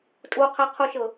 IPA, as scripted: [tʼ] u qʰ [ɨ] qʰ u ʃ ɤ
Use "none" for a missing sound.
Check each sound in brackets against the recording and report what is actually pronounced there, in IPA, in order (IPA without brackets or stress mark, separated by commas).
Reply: tʼ, ɛ